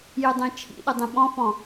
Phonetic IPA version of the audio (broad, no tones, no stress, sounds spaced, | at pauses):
j ɯ dˤ ẽ t͡ʃʰ ḭ ɗ ɯ dˤ ẽ ɓ ɔ̃ f ɔ̃